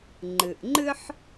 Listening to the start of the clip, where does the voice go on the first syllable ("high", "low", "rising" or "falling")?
low